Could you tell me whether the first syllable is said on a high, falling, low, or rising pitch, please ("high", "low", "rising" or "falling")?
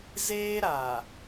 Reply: high